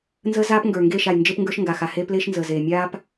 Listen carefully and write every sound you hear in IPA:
n z əː˦ z aː˦ p ŋ ɡ ə˞˨ ŋ ɡ eː˦˨ ʃ a˨ j n d͡ʒ e˦ p ŋ ɡ ə˞˦ ʃ ŋ ɡ a˨ x a˨ h eː˦ p l eː˦ ʃ n z əː˨ z eː˨ mʲ aː˦ p

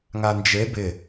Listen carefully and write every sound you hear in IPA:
ŋ a n d͡ʒ e b ɪ

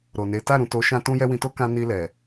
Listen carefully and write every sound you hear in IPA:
ɾ o˨ n e˨˦ t a˦˨ ɾ ũ˨ t o˨˦ ʃ ã˧ t ũ˦ j ɛ˦ w ĩ˧ t o˦ k ã˧ n i˧ l ɛ˨

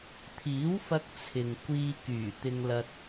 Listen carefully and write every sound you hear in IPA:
t̪ʰ iː˨˥ w f ɐ˧ k̚ t͡sʰ ɪ˨ ŋ kʷ iː˧ k yː˨˩ t̪ ɪ˧ ŋ l ɐ˧ t̚

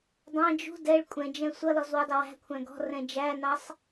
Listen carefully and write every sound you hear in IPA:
dˤ ɑ̃ d͡ʒ ṳ d ɛ ɭ kʷʼ ɛ̃ d͡ʒ ɛ̃ sʷ ʌ l ɔ z w u dˤ ʊ w æ̤ kʷʰ æ̃ ɡ ɔ̤ r ɛ̃ d͡ʒ æ n ɑ sˤ

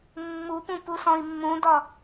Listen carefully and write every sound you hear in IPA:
mː u p ũ p u s ɔ̃ i̯ mː ũ d ɒ

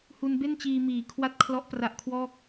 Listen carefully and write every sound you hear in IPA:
h u˧ n b e˥˩ n t͡ɕ iː˧ m iː˨˩ kʰ w a˥˩ t̚ kʰ l ɔ˦˥ ʔ p r a˦˥ ʔ kʰ w ɔː˥˩ k̚

